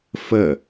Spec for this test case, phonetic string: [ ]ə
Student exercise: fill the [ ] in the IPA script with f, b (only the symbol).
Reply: f